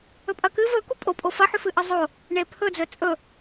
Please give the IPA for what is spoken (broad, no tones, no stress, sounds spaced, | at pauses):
ɵ pʼ ɐ k ɨ v ɵ k u pʼ o pʼ o f ɐ ħ ʉ f ɨ ʔ ɨ zˤ o | ɳ e pʰ ɵ d͡z ɵ t͡sʼ ɵ